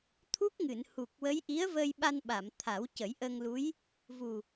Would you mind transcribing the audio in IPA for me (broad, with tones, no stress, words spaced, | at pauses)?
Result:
t̪ʰu˦˥k̚ŋɨ˨˩˨nhu˨˩k̚wə˧˥j ʔi˧˥ə̯və˧j ɓa˧nɓa˨˩˨m t̪ʰa˨˩˦wcə˨˩˦jʔə˧ŋlu˧˥j | vu˨˩